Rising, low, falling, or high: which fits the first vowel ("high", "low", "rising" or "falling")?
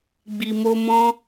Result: low